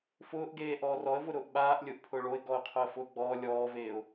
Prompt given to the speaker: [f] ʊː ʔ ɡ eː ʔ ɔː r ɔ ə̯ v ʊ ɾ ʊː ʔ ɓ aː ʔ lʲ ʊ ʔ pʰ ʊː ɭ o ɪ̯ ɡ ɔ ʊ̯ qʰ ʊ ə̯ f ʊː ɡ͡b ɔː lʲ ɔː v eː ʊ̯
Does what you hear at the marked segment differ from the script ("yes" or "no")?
no